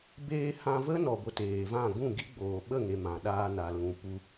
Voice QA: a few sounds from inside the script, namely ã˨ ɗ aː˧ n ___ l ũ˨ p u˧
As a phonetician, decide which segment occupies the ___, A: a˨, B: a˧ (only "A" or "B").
A